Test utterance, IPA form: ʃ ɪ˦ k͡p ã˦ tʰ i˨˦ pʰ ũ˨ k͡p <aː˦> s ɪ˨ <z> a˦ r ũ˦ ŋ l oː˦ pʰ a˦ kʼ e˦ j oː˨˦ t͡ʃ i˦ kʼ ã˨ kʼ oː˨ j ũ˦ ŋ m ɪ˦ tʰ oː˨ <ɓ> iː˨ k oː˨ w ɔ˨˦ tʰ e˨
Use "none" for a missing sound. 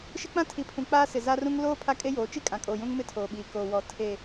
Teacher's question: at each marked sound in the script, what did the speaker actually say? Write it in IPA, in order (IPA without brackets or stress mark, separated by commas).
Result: aː˦, z, ɓ